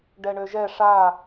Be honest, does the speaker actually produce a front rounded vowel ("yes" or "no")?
yes